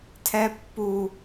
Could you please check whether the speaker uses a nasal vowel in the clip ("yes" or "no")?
no